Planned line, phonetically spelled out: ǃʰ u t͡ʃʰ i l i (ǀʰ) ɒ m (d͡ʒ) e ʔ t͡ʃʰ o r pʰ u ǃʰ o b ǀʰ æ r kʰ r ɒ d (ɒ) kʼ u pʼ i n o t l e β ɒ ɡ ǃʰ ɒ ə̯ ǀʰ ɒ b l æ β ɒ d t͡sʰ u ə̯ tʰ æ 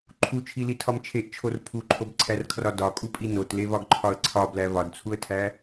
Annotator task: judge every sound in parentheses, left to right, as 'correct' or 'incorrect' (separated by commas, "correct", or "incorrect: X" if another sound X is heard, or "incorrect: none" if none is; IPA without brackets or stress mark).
incorrect: tʰ, incorrect: t͡ʃʰ, correct